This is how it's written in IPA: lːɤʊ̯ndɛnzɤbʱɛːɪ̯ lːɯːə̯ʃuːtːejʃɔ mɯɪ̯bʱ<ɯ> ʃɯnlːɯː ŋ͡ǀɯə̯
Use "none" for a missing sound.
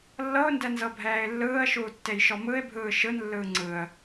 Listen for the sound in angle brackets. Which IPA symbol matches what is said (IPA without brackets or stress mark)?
ɯː